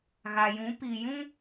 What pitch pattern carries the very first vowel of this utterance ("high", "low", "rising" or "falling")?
low